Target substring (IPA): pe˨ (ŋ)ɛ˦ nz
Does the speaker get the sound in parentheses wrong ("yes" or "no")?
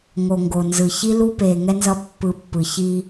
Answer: no